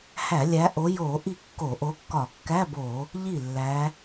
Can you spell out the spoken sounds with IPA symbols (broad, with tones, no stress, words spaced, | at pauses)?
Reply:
hæ˧˩˧lʲæ˨˦ʔo˨˦ jo˧˩˧ ʔi˥˩kːo˧˩˧ ʔo˨˦kːɒ˧˩˧ kːæ˧˥˧bo˧˩˧ | ʎi˥˩lːæ˨˦